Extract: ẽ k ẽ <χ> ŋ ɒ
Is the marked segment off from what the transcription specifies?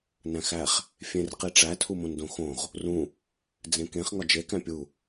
no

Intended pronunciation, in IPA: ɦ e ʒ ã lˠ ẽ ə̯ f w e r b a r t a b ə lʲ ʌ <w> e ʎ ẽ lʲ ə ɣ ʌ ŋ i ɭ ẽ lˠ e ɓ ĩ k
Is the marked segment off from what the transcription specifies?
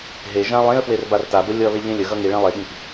yes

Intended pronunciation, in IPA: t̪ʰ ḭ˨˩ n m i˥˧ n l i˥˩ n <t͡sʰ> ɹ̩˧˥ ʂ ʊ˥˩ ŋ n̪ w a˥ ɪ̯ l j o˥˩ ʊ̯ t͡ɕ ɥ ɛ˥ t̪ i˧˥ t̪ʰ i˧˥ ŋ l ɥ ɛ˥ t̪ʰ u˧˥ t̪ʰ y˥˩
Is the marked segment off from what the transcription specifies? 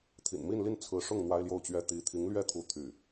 no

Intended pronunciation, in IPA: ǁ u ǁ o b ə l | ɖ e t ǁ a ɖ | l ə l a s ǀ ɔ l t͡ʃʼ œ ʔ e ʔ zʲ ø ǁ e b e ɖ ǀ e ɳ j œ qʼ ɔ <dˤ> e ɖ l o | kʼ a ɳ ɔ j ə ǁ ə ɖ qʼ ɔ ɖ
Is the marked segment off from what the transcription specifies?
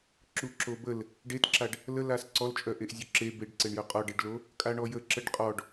yes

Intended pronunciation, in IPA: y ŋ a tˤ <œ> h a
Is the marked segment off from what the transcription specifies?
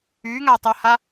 no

